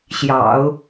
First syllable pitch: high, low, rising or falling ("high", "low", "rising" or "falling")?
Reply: low